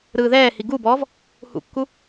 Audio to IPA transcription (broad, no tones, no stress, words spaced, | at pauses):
ɾɯːðɛːhi ɡubɔːv | hṵkːu